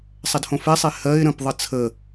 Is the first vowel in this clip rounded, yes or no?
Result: no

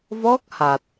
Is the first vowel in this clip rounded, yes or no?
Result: yes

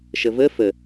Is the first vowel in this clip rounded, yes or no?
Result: no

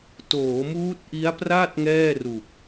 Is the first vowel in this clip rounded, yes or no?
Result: yes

